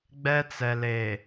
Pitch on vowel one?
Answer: high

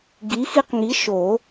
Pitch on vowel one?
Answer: rising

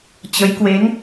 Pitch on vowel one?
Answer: rising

